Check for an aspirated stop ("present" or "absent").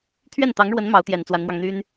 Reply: present